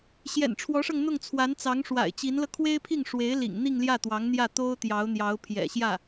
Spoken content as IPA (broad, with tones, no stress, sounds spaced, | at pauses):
ɕ j ɛ̰˨˩ n ʈ͡ʂʰ w ɔ˧˥ ʂ ɤ˧ ŋ n̪ ʊ˥˩ ŋ t͡sʰ w a˧˥ n t͡s ɑ˧˥ ŋ ʂ w a̰˨˩ ɪ̯ t͡ɕ i˧˥ n l ɤ˧ kʰ w e˥ ɪ̯ pʰ i˥˩ ŋ ʂ w e˧˥ ɪ̯ l ḭ˨˩ ŋ n̪ i˥˧ ŋ l j ä˥˩ t̪ w ɑ˧˥ ŋ n̪ j ä˥˩ t̪ o˥ ʊ̯ t̪ j ɑ˧˥ ʊ̯ n̪ j ɑ˧˥ ʊ̯ pʰ j ɛ̰˨˩ ɕ j ä˥˩